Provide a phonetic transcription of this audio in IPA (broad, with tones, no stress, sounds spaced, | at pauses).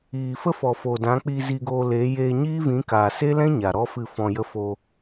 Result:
iː˨ f ə˦ f ɔ˨ f o˨ d ã˨˦ k͡p iː˧ z i˧ ɡ oː˧ l eː˨˦ j eː˧ ɲ iː˦ v ĩ˨˦ k aː˨ s e˦ l ɛ̃˦ ɲ a˨ ɾ ɔ˦ f ɨ˦˨ f ɔ̃˧ j ə˧ f o˧